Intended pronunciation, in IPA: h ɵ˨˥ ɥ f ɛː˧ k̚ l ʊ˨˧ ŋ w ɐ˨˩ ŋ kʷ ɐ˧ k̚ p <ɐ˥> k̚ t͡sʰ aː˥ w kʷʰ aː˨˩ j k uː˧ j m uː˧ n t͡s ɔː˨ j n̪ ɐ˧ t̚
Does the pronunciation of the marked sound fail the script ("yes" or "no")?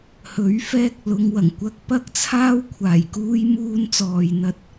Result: no